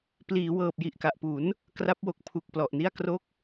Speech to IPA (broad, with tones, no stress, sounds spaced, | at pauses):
p l iː˩˦ w ɤː˨˩ p̚ j i˨˩ ʔ k a˨˩ ʔ p u˩˦ n | k r a˦˥ p̚ w o˨˩ k̚ pʰ u˨˩ k̚ p l ɔ˨˩ ʔ n i˥˩ a̯ k r o˥˩ k̚